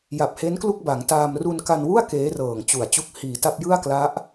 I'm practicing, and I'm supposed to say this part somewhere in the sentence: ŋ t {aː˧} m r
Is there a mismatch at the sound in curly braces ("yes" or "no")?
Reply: no